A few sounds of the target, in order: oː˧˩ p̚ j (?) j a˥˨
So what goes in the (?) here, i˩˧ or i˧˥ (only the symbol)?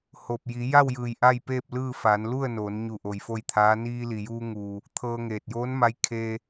i˩˧